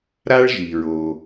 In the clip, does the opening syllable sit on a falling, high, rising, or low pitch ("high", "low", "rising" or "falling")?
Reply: high